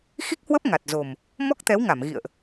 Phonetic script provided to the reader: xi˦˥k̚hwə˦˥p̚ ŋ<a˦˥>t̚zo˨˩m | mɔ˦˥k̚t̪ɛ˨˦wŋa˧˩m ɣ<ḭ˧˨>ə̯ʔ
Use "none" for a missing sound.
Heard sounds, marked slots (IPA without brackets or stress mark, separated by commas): a˨˩, ḭ˧˨